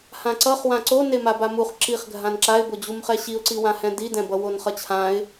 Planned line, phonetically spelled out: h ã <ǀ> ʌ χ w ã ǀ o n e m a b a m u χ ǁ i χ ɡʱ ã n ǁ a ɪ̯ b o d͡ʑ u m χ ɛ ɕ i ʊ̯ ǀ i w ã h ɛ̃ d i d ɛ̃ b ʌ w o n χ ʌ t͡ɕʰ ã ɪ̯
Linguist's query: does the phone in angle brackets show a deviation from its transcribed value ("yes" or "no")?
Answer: no